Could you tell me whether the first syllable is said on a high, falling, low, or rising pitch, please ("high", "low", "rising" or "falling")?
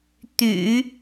low